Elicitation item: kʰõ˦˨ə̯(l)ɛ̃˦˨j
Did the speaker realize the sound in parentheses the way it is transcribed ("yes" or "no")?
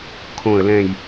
yes